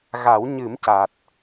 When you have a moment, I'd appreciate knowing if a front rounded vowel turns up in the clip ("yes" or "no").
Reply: no